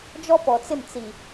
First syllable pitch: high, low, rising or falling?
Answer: high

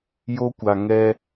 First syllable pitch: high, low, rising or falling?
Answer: high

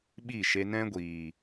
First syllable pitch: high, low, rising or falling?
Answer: falling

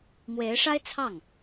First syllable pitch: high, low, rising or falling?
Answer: rising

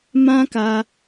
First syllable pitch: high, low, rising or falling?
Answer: high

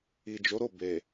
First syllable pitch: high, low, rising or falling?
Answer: low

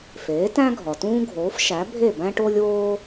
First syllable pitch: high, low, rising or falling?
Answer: rising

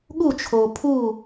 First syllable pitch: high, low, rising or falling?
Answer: falling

